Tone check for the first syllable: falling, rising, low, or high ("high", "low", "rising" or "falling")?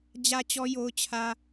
high